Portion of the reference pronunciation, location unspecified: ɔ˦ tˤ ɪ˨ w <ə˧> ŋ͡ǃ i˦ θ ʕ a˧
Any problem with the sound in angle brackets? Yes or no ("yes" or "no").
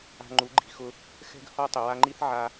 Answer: yes